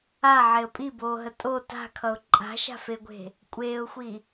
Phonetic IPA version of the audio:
aʕeə̯ pʼiboːɦə tʼo ta̤kʰʌʊ̯ ǃʼa̤ʃa̤feɡʷe̤ | kʷʼeːʊ̯xʷi

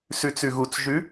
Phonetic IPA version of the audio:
sʉt͡sʉɣut͡sʒʉ

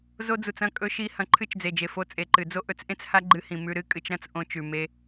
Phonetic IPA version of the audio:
zo˧d͡zu˨t͡sɐ̃˦˨ kʼɵ˧ʃi˧ hɐ̃˧ǃʰɨ˦˨t͡ʃd͡ze˨d͡ʒe˨ fo˧t͡sʼe˨ǃɨ˨d͡zo˦ ʔɵ˧t͡sʔẽ˦t͡sha˦ɡ͡ǃɨ˧ hĩ˨mʉ˧ ɾɨ˦kʼɨ˧t͡ʃɾɐ̃˦t͡s ʔõ˧ t͡ʃʉ˨me˧

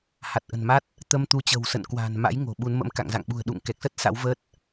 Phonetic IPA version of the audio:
ha˨˩t̚ʔə̤˨˩nma˦˥t̚ | t̪ə˧mt̪u˨˦t͡ɕə̤˨˩wsə̰˧˨n kwa̤ː˨˩n ma̰˧˥j ŋo̤˨˩ɓu˨˦nmə̰˧˥m ka̰˧˨ŋza̰˧˨ŋɓṳ˨˩ə̯ ɗṵ˧˨ŋkɛ˨˩k̚sə˦˥t̚ sa̰˧˥wvəː˦˥t̚

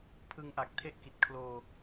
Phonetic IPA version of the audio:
pʰɯ˧ŋʔa˨˩k̚ tʰe˥˩ʔki˨˩t̚kʰloː˧

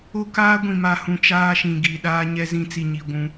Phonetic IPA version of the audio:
o˦kaː˦ ɡʷĩ˨ma˨hũ˨ t͡ʃaː˦ʃĩ˨ɡi˨ ɗaː˦ɲɛ˦zĩ˦ t͡si˨ɲi˨ ɡʷũ˦

